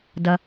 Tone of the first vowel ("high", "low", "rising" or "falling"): low